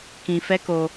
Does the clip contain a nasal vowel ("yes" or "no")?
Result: yes